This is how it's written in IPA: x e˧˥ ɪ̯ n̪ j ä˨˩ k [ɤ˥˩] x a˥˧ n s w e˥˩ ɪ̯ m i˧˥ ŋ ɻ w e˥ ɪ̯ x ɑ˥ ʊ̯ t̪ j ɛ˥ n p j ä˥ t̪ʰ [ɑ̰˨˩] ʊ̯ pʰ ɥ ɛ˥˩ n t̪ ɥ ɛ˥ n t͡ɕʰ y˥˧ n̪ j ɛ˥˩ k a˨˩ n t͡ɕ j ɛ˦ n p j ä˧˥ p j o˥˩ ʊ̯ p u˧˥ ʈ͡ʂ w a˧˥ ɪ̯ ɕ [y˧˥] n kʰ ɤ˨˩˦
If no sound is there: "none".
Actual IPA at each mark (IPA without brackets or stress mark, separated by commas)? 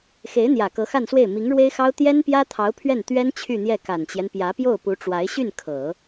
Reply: ɤ˧˥, ɑ˧˥, y˥˩